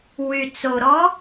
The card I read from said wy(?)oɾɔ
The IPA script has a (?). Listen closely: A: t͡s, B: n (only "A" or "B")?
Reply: A